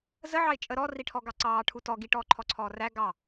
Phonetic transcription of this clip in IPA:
zəʕɑɪ̯ t͡ʃʼə ɾɔriʈʰɔɡɑ ǀɑːʈʰu tɔ ɡiʈɔːǃʰɔǀʰɔː ræ ɡɑ

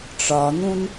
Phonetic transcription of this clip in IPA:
ʈ͡ʂɒn̪ũn

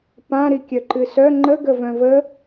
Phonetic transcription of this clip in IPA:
pã ɾikʲœǃɨsœ ŋ͡ǃə ɡəvœ̃və

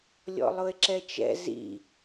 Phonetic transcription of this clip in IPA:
lʲɔ̰lˠʊɪ̯ǁɛt͡ʃɛ̰ zḭ

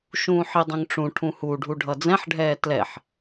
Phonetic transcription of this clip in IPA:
ʃũːħidˤɛ̃ŋʈ͡ʂũ ʈʰũhuɖʱu ɖʱʌd͡zɛ̃ħɖʱɛː tlɛħ

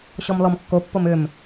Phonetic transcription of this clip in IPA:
ɕɔmlɔmkːopːom ʏm

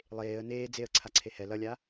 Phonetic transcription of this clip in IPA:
lˠeːə̯ neː d͡zeə̯ ǀʰaǀʰehɛ lʌlʲa

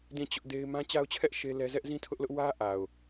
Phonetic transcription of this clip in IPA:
dĩ˦˨t͡ɕʊ˦ʔde˦ɪ̯ mã˦t͡ɕa˦ʊ̯t͡ɕʰɛ˦ʔ ʃe˦ lɛ˦ zɛ˦ʔzĩ˦tʰʊ˦ʔlʊ˦ʔ wä˦ʔa˨ʊ̯

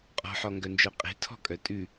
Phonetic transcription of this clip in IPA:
qʼɔ̤ħɔŋɡœnd͡ʒœ qʼe̤tʰɔ̤kʼœ tʼʉ

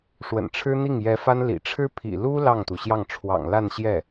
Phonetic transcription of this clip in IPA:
ʂwə̰˨˩nʈ͡ʂʰɻ̩˥ n̪i˥˩ŋjɛ˧˥fa˥n lḭ˨˩ʈ͡ʂʰɻ̩˥ pʰḭ˨˩lu˥ lɑ˥˩ŋt̪u˩ɕjɑ˥˩ŋ ʈ͡ʂʰwɑ̰˨˩ŋla˥˧n ɕjɛ˥˩

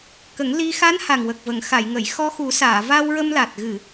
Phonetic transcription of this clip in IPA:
kə˨˩˦ŋ li˧ xa˧˥nha˨˩ŋ wə˨˩k̚və˨˩˨ŋxa˨˩˨j ŋə˨˩˨j xɔ˧xu˨˩˦saː˨˩˨ va˧wɹə˧mla˨˩t̚ ɣɨ˨˩˨

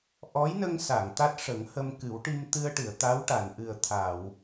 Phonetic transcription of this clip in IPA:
ʔɔ˧˥jnə˧ŋsa˨˩˨ŋ t̪a˦˥t̚ʂə˨˩˦ŋhə˧m kɨ˨˩˦wʈi˧mt̪ɨ˧ə̯ʈɨ˨˩˨ə̯ t̪a˧˥wʈa˨˩˨nʔɨ˨˩ə̯t̪ʰa˨˩˨w

